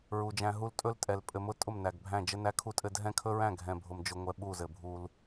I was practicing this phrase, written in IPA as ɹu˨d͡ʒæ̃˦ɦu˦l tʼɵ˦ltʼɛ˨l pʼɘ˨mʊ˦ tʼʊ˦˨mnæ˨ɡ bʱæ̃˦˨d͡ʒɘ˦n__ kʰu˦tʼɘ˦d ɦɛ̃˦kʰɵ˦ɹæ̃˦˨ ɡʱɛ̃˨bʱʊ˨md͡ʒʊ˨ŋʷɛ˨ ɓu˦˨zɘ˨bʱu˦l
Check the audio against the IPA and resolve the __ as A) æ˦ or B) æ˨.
A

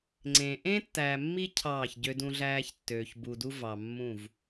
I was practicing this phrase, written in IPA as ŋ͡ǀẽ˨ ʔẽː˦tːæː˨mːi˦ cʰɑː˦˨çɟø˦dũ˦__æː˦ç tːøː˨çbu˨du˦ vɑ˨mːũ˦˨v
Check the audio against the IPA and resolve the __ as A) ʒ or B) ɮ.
B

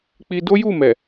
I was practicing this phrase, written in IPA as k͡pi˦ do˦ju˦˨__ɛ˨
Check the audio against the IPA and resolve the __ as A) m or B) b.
A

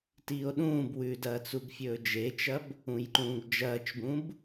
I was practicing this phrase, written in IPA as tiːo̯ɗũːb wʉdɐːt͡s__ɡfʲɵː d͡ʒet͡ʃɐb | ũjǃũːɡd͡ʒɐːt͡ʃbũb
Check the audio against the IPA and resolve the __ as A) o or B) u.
B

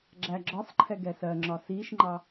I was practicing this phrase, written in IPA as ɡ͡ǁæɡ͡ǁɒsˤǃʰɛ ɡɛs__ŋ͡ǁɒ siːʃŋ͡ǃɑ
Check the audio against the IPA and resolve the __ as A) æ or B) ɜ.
B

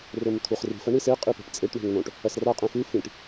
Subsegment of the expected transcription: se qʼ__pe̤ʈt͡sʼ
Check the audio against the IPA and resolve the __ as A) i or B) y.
A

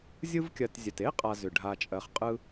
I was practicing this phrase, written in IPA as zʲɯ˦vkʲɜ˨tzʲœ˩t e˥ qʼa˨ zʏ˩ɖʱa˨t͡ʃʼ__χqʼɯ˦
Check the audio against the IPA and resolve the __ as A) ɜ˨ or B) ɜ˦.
A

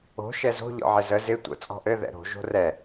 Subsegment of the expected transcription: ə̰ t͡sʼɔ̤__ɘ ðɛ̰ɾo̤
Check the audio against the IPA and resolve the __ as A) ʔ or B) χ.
A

